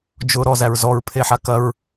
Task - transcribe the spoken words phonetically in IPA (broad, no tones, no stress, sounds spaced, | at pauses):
d͡ʒ ʊ ɾ ɔ z æ ɹ z ɔ ɹ pʰ e ħ a k ɐ ɹ